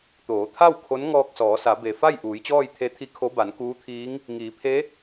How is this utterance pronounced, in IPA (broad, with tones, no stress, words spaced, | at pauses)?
t̪oː˩˧t̪ʰa˥˨w kʰo˧˥nŋɔː˧k̚sɔː˩˧sa˩˧ be˩fa˥˨j ʔuː˩˧jt͡ɕɔː˥˨jt̪ʰe˧˥t̪ʰi˧˥ kʰo˧˥ba˩˧nkuː˧˥t̪ʰiː˧˥ŋ | ŋiː˩˧pʰe˧˥